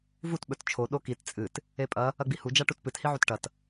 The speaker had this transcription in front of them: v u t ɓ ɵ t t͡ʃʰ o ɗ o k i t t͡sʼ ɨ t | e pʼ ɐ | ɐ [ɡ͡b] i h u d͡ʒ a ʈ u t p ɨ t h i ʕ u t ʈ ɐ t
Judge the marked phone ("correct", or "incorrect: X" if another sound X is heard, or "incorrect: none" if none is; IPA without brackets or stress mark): correct